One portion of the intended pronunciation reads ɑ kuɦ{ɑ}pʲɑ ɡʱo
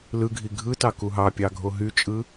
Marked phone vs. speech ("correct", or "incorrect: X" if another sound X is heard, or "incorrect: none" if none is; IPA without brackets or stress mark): correct